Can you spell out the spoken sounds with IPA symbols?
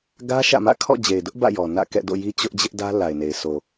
ɡ ä˦ ʃ ä̰˦˨ m ä̰˦˨ kʰ ɔ̰˦˨ d͡ʑ e˨ ɪ̯ d ʊ˦ ʔ b ä̰˦˨ j ɔ˨ n ä̰˦˨ k ɛ̰˦˨ d o̰˦˨ j i˦ t͡ɕ ʊ˦ ʔ d͡ʑ ɪ˦ ʔ d ä˦ l a˨ ɪ̯ n e˨ ɪ̯ s o˨

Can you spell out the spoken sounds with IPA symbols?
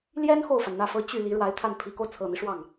l j ɛ˥ n x o˥˩ ʊ̯ f a˩ n n̪ ä˥˩ f ɤ˥ t͡ɕ y˥˩ l i˧˥ ɻ w a˧˥ ɪ̯ t̪ʰ a˥˩ n pʰ i˧˥ k o˧ ʊ̯ t͡sʰ ɤ˨˩ n̪ i˦ ʂ w ɑ˥˩ ŋ

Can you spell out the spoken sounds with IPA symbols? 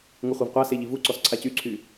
ŋ u χʷ ɛ v qʷ a s e ʎ i v u ǀ ɔ s ǀʰ a c y ǀʰ y

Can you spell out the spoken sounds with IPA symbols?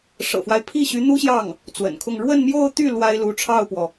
ʂ ɤ̰˨˩ f w a˦ ɪ̯ pʰ i˥˩ ɕ y˧˥ n̪ u˥ ɕ j ɑ˥˩ ŋ | t͡s w ə̰˨˩ n kʰ ʊ˥˧ ŋ ɻ w ə˥˧ n m j o˥˧ ʊ̯ t̪ y˥˩ l w a˥ ɪ̯ l u˧˥ ʈ͡ʂʰ ɑ˥˩ ʊ̯ p w ɔ˩

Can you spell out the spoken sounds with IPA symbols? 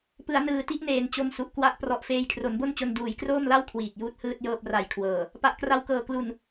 p ɯ˩˦ a̯ n ɯː˨˩ t i˦˥ ʔ n eː˨˩ n t͡ɕ o˧ m s u˨˩ ʔ k w a˦˥ ʔ p r ɔ˨˩ ʔ f eː˧ j kʰ r o˩˦ n b o˥˩ n t͡ɕ o˧ n d uː˩˦ j k r oː˥˩ m l a˥˩ w kʰ w iː˨˩ k̚ j uː˦˥ t̚ h ɯː˥˩ t̚ j ɤː˥˩ p̚ r a˨˩ j kʰ w ɤː˨˩ | p a˨˩ ʔ k r a˧ w k ɤː˨˩ k l u˨˩ n

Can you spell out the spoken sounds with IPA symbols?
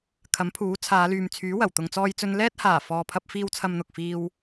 kʰ ɐ˨˥ m pʰ uː˨˥ t͡sʰ aː˨˧ l yː˨ m t͡sʰ yː˨˥ w ɐ˨˩ w t̪ ʊ˧ ŋ t͡s ɔː˥ j t͡s ɵ˥ n l ɛː˥ t̚ h aː˨˩ f ɔː˨ pʰ ɐ˧ p̚ f iː˧ w t͡sʰ ɐ˧ m n̪ ʊ˨ k̚ f iː˧ w

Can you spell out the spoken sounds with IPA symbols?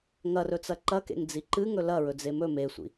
ŋ ɐ r ɵ t͡s ɐ ǃ ɐ k ḛ ŋ d͡z i ǃ ɨ ŋ ɵ l ɐ ɹ ɵ d͡z e m ɵ m e sʷ ḭ

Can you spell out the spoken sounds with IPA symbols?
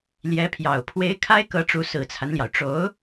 l j ɛ˧˥ pʰ j ɑ˨˩ ʊ̯ pʰ w e˧˥ ɪ̯ kʰ a˥ ɪ̯ k ɤ˧˥ ʈ͡ʂ u˧˥ s ɹ̩˨˩ t͡sʰ a˦ n l j ɑ˩ ʊ̯ ʈ͡ʂ o˧˥ ʊ̯

